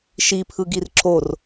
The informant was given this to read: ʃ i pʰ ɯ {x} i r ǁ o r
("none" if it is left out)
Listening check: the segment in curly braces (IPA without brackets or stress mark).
ɡ